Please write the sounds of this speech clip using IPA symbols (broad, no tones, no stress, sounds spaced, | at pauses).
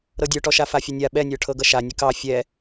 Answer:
ɾ ɤ dʲ ə˞ ʈ ɔ ʃ a f a fʲ ə nʲ a ɓ ɛ nʲ ə˞ ʈʰ ɤ ɡ ʌ ʃ a nʲ ə k ɑ fʲ ɛ